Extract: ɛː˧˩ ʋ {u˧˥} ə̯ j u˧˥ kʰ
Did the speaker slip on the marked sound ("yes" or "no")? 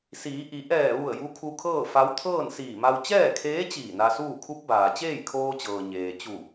yes